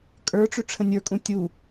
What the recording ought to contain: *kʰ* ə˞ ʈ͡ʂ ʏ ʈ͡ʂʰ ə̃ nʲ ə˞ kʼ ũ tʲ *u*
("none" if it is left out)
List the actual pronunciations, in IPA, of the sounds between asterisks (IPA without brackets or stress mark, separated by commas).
kʼ, u